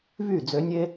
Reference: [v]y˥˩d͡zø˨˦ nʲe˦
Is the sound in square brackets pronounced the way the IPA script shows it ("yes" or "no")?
yes